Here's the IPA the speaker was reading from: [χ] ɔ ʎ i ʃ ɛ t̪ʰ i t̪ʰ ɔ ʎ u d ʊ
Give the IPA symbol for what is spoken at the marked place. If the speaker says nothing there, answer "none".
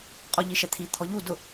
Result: qʼ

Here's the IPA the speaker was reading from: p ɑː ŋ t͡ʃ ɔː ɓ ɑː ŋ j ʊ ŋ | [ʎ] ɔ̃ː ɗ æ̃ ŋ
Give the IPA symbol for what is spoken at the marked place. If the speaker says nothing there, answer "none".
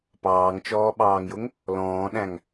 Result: l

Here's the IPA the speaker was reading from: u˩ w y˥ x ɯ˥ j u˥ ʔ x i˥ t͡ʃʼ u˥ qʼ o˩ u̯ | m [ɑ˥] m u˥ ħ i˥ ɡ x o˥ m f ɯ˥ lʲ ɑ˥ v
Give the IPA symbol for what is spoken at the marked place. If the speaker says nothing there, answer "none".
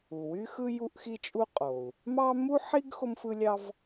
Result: ɑ˥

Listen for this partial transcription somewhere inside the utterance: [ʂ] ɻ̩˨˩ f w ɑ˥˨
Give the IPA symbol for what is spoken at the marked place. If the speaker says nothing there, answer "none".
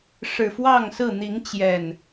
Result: ʂ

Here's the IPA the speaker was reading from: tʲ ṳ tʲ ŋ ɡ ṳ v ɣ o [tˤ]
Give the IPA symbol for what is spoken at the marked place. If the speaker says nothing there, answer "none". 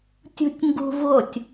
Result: tʲ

